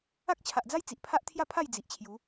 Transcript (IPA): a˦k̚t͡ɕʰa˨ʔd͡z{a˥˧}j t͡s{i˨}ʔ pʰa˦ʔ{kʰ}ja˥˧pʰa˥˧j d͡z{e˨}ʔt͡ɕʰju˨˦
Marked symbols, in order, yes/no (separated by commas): no, yes, no, no